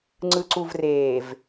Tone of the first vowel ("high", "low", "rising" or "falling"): low